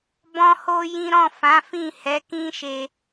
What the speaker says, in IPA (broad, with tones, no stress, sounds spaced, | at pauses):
b ɔ̃˦ h o˦ j ĩ˦ ɾ ɔ̃˦˨ f ã˨˦ f ĩ˦˨ h ɛ˨˦ k ĩ˦ ʃ e˦